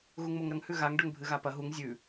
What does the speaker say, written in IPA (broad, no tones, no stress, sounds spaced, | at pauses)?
ɣ u ŋ m o ŋ ɾ ɐ ŋ h ʉ ɣ a ŋ ɖ ɵ ŋ bʱ ɨ ɣ a p ɐ ɦ u ŋ zʲ ʉ